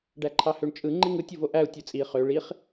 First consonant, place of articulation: retroflex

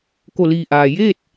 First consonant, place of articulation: velar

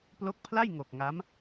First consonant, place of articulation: labial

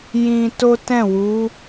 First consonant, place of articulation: palatal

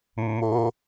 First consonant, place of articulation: labial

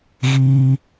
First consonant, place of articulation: velar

